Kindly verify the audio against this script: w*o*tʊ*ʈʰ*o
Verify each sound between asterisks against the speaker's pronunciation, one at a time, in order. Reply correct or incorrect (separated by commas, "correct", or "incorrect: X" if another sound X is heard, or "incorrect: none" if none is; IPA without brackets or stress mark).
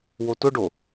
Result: correct, incorrect: ɖ